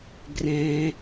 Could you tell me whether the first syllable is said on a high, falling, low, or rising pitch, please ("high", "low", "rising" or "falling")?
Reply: high